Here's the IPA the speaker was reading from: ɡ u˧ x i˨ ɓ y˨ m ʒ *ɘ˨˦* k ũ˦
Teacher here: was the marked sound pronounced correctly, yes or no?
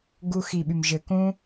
yes